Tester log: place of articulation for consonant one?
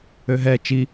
glottal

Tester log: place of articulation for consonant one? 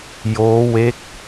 palatal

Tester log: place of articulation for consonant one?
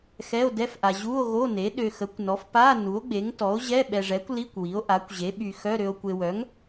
velar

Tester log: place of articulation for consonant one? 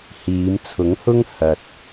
glottal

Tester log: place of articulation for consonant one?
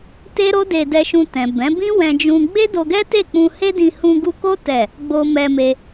alveolar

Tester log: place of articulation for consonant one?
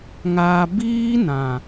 velar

